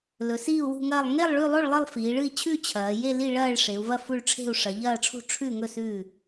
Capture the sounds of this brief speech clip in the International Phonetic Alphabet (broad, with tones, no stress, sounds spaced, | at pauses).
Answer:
l ɵ˩˧ s iː˥˨ u̯ w ṳ˥˨ ŋ ɐː˥˨ lˠ ŋ e˥˨ lˠ ɭ ʉ˥˨ lˠ o˥˨ ɭ lˠ ɨ˥˨ lˠ f iː˩˧ ɭ ɨ˥˨ i̯ t͡ɕʰ ʉ˥˨ t͡ɕʰ ɐː˩˧ j e˥˨ l i˥˨ ɭ ɐː˥˨ ɭ ʂ e˩˧ u̯ v ɐ˥˨ f u˥˨ ɭ ʈ͡ʂʰ e̤˥˨ u̯ ʂ ɐ˩˧ ʎ ɐː˥˨ ʈ͡ʂʰ ṳ˥˨ ʈ͡ʂʰ ʉ˥˨ ŋ ɵ˥˨ s ʉ˥˨